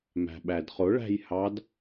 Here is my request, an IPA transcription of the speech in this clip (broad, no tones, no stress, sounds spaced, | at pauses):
m æ̤ ɓ æ d χ ʊ ɭ æ̤ j h ɑ d